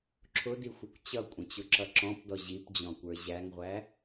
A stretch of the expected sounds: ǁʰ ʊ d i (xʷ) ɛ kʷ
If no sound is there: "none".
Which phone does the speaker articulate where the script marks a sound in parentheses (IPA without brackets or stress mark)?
xʷ